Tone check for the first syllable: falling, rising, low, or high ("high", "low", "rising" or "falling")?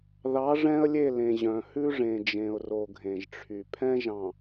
rising